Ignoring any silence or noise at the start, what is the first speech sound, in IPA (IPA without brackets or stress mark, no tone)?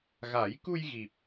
ɣ